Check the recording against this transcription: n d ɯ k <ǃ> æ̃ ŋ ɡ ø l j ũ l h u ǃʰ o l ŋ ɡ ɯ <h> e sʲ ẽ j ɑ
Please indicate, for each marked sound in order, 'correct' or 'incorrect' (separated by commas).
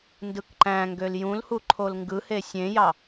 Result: correct, correct